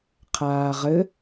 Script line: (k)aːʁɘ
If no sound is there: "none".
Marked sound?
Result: qʰ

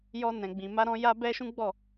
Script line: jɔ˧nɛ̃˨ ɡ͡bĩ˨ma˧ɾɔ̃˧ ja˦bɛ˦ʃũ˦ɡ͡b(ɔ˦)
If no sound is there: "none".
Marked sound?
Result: ɔ˦˨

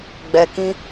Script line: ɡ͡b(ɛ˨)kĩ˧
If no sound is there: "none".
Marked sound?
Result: ɛ˨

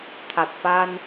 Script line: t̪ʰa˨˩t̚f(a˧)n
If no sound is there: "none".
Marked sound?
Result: a˧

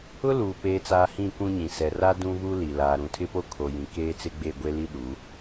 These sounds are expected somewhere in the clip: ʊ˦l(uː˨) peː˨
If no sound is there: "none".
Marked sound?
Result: uː˨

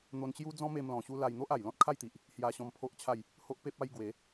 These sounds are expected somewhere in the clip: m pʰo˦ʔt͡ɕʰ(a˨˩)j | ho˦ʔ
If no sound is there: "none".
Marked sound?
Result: a˥˧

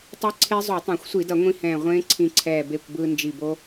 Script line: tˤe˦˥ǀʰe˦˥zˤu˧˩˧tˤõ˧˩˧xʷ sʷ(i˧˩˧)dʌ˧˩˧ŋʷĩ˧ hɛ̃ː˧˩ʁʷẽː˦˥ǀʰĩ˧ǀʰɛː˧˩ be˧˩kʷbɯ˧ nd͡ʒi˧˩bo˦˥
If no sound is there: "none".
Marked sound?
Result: i˧˩˧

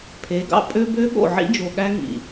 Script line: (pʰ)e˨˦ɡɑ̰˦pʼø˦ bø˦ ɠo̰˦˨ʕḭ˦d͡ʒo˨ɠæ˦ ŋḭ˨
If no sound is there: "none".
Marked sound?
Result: pʰ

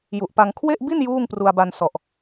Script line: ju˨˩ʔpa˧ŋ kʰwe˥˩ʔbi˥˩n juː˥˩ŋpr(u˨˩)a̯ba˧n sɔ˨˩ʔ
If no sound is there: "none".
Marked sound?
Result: u˧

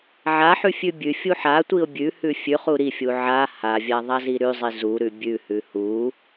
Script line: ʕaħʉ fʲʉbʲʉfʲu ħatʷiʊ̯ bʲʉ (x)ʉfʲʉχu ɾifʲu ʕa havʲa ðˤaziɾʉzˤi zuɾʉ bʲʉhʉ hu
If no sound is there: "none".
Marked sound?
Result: h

